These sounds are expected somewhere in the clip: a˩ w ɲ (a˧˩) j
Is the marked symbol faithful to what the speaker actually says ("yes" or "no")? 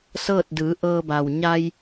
no